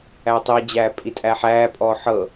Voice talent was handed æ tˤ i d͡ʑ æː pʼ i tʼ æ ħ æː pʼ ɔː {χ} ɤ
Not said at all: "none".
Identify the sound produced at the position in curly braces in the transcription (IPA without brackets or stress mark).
ħ